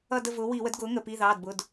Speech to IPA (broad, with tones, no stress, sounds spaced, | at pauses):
ʌ˦˨ d ə˦˨ v ʊː˩˥ w i˧˩˧ w ə˩˥ d ɡ ʊː˩˥ ŋ ə˩˧˩ p i˩˧˩ ð ɑː˩˧˩ d b ʊ˩˧˩ d